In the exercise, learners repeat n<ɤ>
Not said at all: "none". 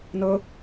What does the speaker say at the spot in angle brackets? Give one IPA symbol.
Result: ɤ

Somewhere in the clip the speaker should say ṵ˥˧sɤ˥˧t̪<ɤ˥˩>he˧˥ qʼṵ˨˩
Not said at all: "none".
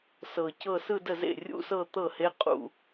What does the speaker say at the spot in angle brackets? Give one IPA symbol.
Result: ɤ˥˩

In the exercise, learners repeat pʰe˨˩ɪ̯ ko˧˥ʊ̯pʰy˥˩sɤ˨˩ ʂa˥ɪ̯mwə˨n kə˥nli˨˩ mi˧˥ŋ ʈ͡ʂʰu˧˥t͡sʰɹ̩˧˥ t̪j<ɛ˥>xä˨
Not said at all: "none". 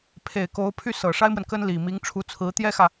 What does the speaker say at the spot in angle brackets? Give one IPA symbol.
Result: ɛ˥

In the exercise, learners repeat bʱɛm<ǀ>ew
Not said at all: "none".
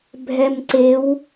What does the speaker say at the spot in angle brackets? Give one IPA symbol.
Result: ǀ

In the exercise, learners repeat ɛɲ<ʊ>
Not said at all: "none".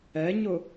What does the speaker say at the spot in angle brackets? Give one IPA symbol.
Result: ʊ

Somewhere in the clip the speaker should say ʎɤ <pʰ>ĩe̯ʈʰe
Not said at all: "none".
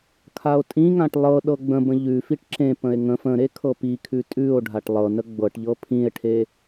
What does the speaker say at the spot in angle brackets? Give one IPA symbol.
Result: pʰ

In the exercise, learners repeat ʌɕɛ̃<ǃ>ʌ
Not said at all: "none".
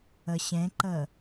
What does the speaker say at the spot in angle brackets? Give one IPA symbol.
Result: ǃ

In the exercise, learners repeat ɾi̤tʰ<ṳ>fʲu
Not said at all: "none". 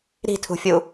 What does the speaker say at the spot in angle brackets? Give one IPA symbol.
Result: ṳ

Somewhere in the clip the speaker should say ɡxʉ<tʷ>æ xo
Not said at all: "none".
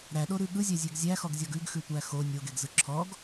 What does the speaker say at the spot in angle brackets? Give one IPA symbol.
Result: tʷ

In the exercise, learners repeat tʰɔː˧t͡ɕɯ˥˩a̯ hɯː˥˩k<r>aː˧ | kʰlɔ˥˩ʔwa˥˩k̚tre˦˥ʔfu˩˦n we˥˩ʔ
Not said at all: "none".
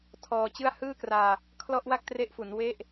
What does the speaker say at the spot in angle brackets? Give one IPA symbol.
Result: r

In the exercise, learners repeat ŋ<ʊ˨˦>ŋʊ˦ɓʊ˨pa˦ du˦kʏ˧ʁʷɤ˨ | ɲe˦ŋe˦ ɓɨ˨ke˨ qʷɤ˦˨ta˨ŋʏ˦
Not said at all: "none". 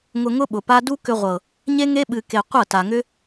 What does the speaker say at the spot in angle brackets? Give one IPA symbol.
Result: ʊ˧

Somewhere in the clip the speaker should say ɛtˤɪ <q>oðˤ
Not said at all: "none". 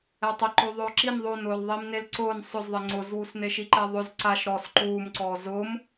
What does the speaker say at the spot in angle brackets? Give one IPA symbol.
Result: ǃ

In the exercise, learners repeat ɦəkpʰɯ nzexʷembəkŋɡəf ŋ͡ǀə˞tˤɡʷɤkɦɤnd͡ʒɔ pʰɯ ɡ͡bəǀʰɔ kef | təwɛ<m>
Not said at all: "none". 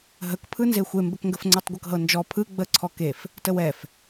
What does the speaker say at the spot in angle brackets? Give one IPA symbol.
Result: f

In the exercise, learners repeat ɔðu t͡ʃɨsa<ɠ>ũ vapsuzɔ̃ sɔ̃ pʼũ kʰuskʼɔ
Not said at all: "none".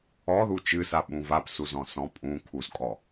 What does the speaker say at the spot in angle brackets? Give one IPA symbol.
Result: ɓ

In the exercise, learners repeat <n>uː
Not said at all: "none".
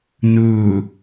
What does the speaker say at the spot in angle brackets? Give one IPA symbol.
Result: n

